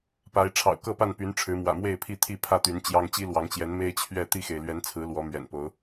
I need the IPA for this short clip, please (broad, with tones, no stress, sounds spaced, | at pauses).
p a˨˦ ɪ̯ ʈ͡ʂʰ ɑ̰˨˩ ʊ̯ k ɤ˥˨ p a˥˨ n p y˨˦ n ʈ͡ʂʰ ɻ̩˨˦ m w ä̰˨˩ m w e˥˨ ɪ̯ pʰ i˥˨ t̪ʰ i˥˨ pʰ ä˥˨ t̪ y˨˦ n t͡ɕ j ɑ˦ ŋ t͡ɕ i˦ l w ɑ˨˦ ŋ t͡ɕ j ɛ˨˦ n m e˦ ɪ̯ t͡ɕʰ ɥ ɛ˥˨ t̪ i˥˨ x e˩ ɪ̯ l ɥ ɛ˨˦ n t͡sʰ ɹ̩˨˦ l w ɔ˨˦ m ɥ ɛ̰˨˩ n p o˨˦ ʊ̯